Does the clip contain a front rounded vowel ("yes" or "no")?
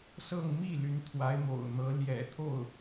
yes